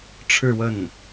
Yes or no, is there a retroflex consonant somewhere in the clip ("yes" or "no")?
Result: yes